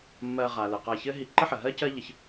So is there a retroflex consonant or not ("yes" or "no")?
no